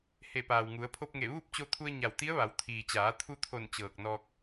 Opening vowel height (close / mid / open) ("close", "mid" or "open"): mid